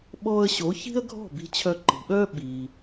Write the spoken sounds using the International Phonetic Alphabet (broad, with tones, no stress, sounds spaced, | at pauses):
ɓ ɔː˧ ə̯ ɕ o˩˥ ç i̤˥ ə̯ ɡʱ ɔ̤˥˩ b i̤˧ t͡ɕʰ œ˧ ǃ i̤˩ ɓ œː˥ ɓ iː˩